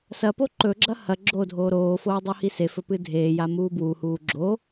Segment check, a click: present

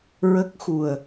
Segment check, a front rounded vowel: absent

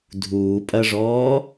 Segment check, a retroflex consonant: present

